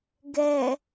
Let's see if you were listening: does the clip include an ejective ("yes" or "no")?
no